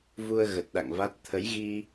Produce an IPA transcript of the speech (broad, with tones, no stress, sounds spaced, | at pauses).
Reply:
v u˧ ə̯ ɣ ə˨˩ t̚ ɗ a̰˧˨ ŋ v a˦˥ t̚ t̪ʰ ə˨˦ j ɣ i˧